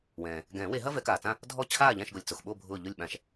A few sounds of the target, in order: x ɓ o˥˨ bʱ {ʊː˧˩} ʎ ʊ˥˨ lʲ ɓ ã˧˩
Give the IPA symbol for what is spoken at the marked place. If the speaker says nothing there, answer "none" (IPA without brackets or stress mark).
ʊː˧˩